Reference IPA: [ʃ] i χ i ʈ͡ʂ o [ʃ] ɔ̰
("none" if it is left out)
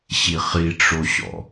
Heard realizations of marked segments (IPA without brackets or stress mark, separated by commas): ɕ, ɕ